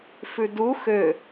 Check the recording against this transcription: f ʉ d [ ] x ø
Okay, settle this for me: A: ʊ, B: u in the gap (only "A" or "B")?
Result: B